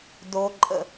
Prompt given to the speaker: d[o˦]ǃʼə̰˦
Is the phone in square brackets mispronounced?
no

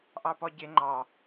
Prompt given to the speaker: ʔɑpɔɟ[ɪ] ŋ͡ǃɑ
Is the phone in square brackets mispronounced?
no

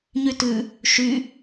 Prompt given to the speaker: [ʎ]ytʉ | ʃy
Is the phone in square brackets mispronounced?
yes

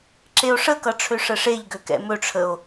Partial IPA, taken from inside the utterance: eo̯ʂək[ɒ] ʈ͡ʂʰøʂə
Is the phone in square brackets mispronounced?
yes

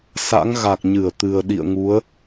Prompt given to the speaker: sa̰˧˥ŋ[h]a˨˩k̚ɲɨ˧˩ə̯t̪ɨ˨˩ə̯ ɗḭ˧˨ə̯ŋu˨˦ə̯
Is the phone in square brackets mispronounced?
yes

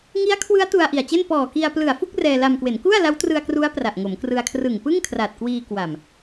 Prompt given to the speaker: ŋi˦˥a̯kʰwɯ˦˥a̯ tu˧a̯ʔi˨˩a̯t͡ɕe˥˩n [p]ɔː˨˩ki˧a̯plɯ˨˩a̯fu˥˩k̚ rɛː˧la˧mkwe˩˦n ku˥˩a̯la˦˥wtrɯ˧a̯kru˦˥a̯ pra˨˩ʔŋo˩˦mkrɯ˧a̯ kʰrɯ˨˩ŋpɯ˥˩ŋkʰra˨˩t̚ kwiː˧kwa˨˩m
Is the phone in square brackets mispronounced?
no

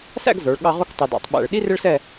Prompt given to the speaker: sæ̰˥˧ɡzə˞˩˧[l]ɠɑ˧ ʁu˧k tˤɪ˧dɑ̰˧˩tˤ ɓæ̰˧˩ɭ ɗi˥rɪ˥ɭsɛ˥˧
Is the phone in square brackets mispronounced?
yes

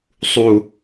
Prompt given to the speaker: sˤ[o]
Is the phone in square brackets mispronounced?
yes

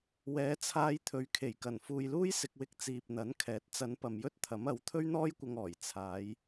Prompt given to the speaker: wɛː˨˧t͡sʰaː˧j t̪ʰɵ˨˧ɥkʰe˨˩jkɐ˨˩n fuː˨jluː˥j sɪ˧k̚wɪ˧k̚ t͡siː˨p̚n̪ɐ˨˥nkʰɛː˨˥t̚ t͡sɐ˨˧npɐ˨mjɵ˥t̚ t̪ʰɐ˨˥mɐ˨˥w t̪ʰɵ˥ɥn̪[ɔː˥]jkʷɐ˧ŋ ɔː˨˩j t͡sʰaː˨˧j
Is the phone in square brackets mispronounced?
no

